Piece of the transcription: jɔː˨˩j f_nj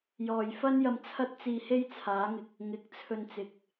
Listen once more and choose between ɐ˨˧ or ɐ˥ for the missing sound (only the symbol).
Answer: ɐ˥